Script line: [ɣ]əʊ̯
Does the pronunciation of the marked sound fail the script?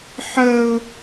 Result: yes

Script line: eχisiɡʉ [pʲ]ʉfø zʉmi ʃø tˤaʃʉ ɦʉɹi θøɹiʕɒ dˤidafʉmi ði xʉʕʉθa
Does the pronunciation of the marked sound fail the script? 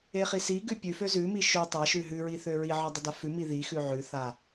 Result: no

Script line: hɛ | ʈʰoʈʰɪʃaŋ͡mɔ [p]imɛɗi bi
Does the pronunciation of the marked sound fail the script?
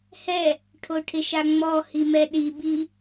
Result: yes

